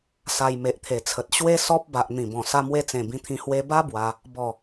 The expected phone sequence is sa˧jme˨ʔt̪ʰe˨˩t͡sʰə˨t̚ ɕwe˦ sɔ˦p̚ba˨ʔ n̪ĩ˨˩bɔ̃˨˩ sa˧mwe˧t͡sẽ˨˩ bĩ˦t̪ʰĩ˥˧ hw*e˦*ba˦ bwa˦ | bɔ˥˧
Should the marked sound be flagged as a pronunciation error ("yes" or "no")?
yes